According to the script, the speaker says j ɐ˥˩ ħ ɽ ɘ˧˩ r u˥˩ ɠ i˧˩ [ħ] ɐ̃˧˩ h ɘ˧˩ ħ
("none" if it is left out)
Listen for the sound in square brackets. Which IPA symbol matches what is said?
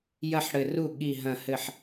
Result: ɦ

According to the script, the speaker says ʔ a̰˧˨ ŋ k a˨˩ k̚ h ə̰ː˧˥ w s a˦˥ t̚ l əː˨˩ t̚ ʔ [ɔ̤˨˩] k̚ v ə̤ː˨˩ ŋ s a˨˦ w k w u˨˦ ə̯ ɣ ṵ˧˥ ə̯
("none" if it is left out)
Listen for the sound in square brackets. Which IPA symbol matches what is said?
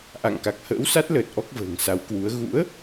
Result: ɔ˦˥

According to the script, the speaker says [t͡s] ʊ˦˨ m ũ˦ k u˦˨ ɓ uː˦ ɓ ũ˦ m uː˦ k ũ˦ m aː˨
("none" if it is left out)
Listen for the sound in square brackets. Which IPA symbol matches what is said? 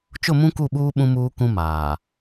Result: t͡ʃ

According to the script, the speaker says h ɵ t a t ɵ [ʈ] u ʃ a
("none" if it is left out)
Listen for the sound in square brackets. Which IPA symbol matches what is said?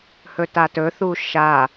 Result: θ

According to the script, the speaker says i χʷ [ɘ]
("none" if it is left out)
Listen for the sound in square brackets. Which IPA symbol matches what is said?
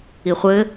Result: ɘ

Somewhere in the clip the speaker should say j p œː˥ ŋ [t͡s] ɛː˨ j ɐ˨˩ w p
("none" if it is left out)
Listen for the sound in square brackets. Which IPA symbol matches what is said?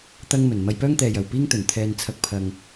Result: t̪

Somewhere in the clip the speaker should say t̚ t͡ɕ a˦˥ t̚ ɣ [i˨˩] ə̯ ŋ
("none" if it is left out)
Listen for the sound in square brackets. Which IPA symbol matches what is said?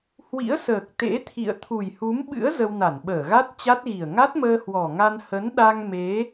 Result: i˨˩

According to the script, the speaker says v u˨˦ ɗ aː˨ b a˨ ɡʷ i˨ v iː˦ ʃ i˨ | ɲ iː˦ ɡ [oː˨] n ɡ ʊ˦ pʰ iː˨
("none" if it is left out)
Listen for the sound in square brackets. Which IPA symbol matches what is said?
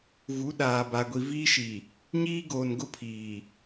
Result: oː˨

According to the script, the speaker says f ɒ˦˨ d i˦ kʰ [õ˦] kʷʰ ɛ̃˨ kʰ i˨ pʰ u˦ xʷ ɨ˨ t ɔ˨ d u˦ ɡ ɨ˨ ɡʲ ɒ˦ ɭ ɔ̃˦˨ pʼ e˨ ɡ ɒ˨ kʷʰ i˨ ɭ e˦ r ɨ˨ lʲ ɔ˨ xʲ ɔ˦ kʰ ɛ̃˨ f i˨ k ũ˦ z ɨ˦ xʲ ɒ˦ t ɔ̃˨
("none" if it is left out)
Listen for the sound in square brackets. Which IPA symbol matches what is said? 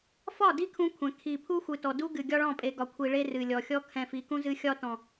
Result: ũ˦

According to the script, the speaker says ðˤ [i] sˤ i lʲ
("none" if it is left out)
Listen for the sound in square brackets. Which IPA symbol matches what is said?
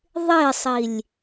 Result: ɪ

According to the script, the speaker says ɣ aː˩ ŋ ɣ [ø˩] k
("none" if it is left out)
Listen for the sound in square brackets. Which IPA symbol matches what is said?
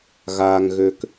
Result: ø˩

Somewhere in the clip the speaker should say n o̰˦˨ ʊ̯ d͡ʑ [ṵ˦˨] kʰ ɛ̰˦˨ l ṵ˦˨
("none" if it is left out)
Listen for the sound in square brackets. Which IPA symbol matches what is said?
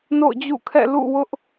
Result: ṵ˦˨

